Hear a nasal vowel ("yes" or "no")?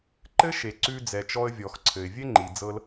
no